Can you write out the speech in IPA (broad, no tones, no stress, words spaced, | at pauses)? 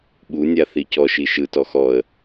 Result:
ɓunʲa θicɔʃi ʃɯtɔ xɔə̯